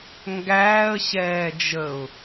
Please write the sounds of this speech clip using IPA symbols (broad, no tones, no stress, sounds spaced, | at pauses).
ŋ ɡ æː ə̯ ɕ ɛː d͡ʒ ə ʊ̯